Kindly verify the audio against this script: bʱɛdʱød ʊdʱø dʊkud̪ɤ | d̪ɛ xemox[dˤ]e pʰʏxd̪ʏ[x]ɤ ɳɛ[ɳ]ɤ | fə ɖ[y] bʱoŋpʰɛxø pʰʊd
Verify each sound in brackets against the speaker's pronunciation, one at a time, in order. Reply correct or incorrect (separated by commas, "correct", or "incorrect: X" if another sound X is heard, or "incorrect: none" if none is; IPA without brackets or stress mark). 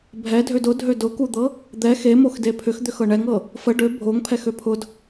incorrect: d, correct, incorrect: ŋ, incorrect: ø